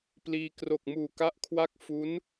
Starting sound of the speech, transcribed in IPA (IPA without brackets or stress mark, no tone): p